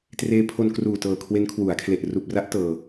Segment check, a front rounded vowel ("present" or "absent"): absent